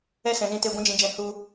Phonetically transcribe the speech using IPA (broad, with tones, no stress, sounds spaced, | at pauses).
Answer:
ɛ˦ s ɛ̃˨ z ĩ˧ t e˧ ɡʷ ɛ̃˦ d͡ʒ ĩ˧ d͡ʒ ɛ̃˧ h u˧